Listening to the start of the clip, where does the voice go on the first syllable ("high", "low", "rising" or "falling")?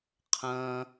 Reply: high